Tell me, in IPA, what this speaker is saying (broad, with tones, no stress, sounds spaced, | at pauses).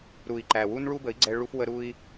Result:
ɾ u˨ i̯ ǃ æ˨ w u˦ n ɭ u˦ b ə˨˦ i̯ ɡ͡ǀ ɛ˧ ɭ u˧ f w ə˧ ɾ u˦ i̯